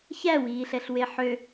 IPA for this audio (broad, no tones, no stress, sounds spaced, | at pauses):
ç æ w iː ɬ ɛ ɬ w e ħ ø